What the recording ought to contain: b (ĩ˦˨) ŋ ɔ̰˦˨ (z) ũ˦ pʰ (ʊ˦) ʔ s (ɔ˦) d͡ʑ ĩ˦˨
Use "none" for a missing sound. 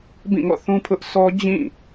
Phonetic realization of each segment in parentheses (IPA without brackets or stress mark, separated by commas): ĩ˦˨, θ, ʊ˦, ɔ˦